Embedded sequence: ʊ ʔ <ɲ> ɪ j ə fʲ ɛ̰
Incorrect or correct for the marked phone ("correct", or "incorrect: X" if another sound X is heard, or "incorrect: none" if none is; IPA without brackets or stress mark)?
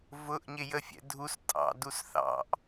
correct